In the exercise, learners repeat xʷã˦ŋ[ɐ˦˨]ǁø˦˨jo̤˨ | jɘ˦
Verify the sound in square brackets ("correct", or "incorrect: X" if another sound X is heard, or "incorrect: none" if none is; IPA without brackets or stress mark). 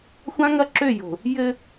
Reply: incorrect: ɐ˦